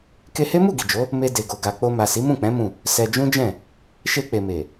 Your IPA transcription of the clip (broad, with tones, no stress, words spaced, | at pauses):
ke˧he˦mu˦˨ ɡi˨d͡ʒo˨˦ | me˧ de˨ɡo˨ ɡa˨k͡po˧ma˨ si˨˦mũ˦˨k͡pɛ̃˨˦ mũ˦˨ | sɛ˧d͡ʒũ˦d͡ʒɛ̃˦˨ | ʃe˧k͡pe˨ me˨